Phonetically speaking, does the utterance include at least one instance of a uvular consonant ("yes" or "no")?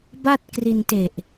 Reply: no